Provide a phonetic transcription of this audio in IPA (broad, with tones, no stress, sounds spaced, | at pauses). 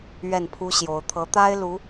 ɥ ɛ˥˩ n pʰ u˥ ɕ j o˧˥ ʊ̯ t̪ʰ ɤ˧˥ t̪ a˥ ɪ̯ l u˧˥